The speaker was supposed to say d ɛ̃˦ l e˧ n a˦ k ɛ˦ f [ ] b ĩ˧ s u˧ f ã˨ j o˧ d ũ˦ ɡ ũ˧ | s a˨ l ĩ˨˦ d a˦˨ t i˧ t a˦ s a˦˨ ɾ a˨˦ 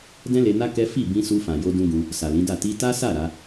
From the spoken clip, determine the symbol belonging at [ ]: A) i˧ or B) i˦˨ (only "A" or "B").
B